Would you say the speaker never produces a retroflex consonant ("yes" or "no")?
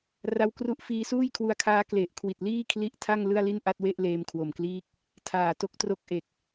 yes